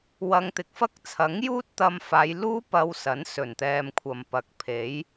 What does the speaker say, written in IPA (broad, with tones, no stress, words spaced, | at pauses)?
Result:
wɐ˧ŋt̪ɪ˧k̚fɐ˥k̚ t͡sʰɐ˨˥ŋ juː˥t̚t̪ɐ˧mfaː˨˧j luː˥ pɐ˧wsɐ˨˥n sɵ˨˩nt̪ɛː˨m kʷʰɐ˨˩mpɐ˨˥k̚pʰe˨˥j